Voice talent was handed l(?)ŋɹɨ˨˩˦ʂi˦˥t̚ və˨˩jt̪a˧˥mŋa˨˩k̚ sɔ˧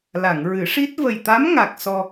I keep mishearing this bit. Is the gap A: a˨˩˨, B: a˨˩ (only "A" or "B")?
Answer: A